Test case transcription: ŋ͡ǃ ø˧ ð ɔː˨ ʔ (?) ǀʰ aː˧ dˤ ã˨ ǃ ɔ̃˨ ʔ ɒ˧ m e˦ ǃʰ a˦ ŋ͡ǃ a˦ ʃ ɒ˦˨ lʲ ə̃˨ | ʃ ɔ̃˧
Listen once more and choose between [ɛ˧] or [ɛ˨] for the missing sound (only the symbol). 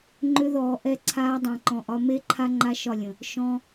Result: ɛ˧